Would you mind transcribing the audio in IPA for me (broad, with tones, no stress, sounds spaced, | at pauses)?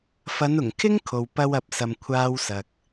f ɐ˨˧ n ʊ˨˩ ŋ kʰ ɪ˥ ŋ kʰ o˨ w p ɐ˥ w ɐ˧ p̚ s ɐ˧ m kʷʰ aː˥ w s ɐ˨ k̚